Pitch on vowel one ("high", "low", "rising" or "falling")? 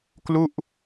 falling